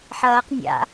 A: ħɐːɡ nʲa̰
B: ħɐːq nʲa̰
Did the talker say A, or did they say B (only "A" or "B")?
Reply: B